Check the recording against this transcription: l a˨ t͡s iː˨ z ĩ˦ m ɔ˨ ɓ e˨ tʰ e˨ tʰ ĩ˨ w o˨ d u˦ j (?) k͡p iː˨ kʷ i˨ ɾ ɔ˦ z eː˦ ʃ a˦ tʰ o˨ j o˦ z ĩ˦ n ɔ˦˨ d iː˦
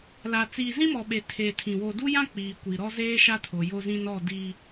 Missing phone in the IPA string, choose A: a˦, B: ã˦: B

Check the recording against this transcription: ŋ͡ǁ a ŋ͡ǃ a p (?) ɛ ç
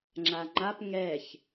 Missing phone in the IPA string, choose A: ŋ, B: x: A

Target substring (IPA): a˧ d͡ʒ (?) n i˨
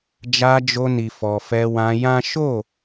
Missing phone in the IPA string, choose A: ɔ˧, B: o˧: B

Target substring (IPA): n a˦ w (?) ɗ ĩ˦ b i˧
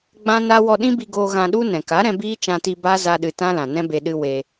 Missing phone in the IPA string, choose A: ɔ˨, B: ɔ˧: B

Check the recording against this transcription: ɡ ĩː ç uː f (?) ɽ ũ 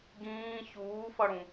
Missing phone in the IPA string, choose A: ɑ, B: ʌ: B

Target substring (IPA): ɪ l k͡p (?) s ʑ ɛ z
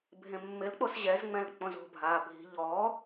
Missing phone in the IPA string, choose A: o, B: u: A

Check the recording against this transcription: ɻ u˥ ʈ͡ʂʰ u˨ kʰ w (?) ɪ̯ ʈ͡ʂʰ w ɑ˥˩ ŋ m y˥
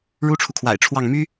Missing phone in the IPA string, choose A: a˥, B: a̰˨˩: B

